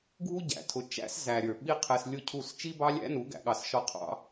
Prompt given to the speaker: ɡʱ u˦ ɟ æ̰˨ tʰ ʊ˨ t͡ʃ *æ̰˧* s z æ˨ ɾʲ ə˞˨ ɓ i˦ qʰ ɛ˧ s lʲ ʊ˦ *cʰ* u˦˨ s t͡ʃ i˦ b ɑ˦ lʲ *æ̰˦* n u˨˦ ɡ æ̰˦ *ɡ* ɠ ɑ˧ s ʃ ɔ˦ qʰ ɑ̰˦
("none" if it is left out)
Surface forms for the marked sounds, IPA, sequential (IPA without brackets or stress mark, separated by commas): æ̰˦, cʰ, æ̰˦, none